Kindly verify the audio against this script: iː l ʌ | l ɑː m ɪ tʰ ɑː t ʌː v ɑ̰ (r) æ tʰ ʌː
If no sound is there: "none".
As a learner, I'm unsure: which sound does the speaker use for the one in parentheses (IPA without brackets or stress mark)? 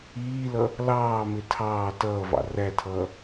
r